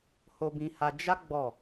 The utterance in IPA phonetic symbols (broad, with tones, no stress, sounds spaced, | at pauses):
h o˧ b ĩ˧ h a˧ d͡ʒ a˦ ɡ͡b ɔ˦˨